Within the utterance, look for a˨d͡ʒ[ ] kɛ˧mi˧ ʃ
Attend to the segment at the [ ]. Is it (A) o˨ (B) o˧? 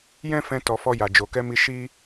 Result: A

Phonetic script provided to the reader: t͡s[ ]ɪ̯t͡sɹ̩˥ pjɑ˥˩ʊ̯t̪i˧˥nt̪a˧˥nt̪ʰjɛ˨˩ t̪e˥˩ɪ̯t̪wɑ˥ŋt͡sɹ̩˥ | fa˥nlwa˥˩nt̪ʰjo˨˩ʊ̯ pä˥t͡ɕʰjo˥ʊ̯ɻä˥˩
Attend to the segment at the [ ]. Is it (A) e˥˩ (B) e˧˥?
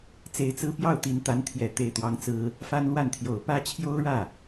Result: B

